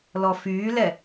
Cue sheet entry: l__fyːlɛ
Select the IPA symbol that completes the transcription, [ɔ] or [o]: ɔ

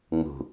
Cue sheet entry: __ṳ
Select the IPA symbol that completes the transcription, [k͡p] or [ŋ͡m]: ŋ͡m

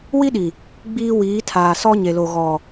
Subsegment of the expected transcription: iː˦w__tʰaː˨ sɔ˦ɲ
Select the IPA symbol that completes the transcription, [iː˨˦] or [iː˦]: iː˨˦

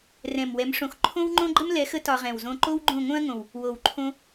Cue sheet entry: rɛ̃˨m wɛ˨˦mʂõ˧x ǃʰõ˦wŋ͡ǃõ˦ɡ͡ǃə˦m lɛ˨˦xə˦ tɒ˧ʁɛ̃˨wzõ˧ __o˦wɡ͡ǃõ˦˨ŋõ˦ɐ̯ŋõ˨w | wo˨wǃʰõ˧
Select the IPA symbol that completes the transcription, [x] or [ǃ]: ǃ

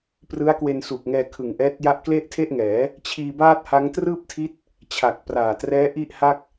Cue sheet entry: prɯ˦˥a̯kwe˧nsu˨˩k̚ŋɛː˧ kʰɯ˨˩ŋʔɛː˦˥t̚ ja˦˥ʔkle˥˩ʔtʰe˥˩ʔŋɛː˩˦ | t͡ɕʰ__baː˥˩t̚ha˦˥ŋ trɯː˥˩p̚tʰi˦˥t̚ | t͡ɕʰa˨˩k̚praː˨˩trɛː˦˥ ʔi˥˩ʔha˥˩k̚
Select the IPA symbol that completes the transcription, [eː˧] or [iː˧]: iː˧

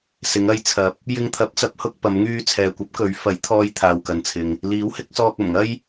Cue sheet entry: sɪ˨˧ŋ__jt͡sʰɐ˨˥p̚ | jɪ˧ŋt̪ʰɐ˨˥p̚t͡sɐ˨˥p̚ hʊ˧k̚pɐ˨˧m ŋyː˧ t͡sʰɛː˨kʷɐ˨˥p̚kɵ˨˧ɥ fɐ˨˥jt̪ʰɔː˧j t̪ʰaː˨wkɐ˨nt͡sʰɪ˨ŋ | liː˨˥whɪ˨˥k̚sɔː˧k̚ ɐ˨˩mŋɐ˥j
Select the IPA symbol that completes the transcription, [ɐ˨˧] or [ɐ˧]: ɐ˧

